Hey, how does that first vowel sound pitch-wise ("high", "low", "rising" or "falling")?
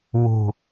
low